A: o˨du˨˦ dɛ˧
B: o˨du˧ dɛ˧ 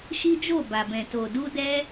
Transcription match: B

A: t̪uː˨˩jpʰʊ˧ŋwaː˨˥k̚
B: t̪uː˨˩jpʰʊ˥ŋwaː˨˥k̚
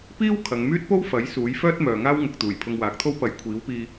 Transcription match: A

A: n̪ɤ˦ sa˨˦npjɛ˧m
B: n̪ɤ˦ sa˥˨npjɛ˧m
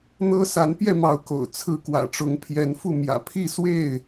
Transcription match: A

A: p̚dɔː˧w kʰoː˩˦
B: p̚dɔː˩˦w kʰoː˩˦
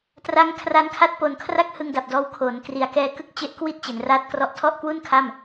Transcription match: A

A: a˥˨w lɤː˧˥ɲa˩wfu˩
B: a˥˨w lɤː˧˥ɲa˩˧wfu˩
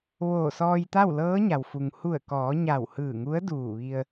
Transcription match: A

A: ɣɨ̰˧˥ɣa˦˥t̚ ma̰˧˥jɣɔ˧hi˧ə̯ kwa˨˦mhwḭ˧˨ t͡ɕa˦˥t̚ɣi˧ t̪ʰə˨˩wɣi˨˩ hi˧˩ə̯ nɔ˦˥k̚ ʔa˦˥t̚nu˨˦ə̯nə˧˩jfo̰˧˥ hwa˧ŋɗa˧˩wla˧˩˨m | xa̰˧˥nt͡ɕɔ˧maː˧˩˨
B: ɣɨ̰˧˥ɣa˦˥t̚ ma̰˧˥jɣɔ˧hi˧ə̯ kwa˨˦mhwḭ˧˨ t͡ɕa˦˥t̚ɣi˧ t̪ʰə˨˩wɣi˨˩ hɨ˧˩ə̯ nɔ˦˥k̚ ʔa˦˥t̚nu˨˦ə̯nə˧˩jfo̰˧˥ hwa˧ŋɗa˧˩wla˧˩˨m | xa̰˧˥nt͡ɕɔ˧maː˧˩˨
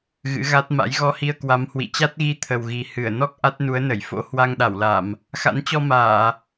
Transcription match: B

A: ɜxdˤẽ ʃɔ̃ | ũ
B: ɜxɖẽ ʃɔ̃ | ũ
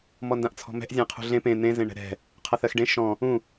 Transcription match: B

